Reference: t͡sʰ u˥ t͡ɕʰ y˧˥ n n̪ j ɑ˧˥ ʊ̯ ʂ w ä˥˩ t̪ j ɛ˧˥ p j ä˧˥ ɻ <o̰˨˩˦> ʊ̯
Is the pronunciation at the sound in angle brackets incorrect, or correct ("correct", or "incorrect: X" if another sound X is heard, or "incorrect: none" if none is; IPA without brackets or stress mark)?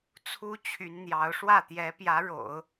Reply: correct